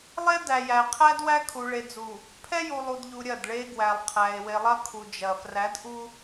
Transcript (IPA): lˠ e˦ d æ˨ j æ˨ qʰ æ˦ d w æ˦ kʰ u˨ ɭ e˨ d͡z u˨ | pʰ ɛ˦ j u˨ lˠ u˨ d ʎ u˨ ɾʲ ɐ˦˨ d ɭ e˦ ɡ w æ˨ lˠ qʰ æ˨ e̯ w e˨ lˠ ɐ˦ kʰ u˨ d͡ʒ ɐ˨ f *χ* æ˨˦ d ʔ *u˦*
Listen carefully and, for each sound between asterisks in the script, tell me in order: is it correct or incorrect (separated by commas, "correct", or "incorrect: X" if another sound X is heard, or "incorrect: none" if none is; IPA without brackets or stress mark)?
incorrect: r, correct